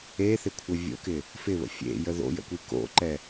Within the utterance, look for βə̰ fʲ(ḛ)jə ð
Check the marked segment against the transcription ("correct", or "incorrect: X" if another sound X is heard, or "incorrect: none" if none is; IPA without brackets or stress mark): correct